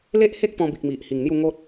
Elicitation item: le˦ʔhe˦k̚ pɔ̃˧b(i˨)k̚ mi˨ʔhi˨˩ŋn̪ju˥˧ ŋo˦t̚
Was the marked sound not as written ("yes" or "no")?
no